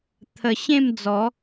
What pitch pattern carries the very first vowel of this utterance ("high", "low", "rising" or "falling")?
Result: low